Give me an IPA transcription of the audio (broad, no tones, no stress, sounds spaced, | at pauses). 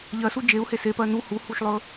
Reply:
ʎ ɜ s u d͡ʒ e u̯ h e s e p ɜ n u h u h u ʃ lˠ ɵ